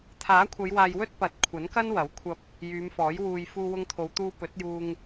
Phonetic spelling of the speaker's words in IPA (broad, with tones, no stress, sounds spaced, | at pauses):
t̪ʰ aː˨˥ kʷʰ ɐ˨˧ j w aː˨ j w ɵ˥ t̚ p ɐ˨˥ t̚ kʷʰ ɐ˨˥ n k ɐ˥ n w ɐ˨˥ w kʷʰ ɐ˧ p̚ | j yː˨˧ m f ɔː˨˥ j w uː˨ j f uː˧ w ʊ˧ ŋ t̪ʰ o˨˧ w t̪ uː˧ p ɵ˨˥ t̚ j uː˧ ŋ